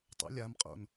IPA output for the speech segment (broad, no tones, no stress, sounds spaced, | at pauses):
tˤ o̰ lʲ a m qʼ o̰ n